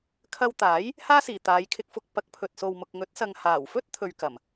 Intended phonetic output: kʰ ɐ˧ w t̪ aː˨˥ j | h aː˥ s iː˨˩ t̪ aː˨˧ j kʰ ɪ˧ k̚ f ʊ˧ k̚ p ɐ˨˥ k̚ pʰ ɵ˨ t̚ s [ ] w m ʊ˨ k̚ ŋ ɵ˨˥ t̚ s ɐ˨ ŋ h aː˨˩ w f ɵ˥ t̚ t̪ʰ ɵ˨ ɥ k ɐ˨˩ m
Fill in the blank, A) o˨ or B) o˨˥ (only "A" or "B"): A